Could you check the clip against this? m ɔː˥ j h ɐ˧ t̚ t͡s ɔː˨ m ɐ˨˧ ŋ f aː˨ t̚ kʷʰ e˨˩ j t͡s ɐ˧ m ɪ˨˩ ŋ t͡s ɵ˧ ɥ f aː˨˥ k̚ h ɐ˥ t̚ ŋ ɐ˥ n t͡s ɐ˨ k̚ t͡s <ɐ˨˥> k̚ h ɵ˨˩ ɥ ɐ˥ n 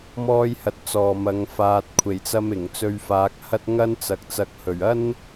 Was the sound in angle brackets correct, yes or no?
no